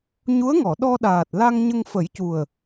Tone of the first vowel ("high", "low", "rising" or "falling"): rising